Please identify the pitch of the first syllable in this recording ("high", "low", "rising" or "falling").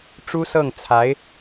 high